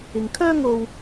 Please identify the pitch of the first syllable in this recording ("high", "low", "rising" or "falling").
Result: low